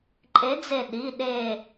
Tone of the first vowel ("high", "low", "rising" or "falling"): rising